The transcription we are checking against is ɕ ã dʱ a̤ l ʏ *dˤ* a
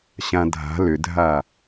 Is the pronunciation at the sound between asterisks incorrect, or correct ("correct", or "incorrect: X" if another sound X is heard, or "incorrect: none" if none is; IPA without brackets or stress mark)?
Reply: incorrect: dʱ